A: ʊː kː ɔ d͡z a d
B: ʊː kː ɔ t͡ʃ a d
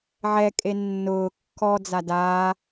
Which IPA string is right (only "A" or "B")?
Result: A